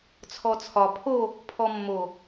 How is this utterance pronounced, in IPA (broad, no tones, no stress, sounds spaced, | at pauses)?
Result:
t͡sʰ ɔ t͡sʰ ɒ pʰ o | pʰ ɔ mː o